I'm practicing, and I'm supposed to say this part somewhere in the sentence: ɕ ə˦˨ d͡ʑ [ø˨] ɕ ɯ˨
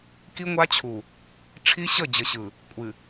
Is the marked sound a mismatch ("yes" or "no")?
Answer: yes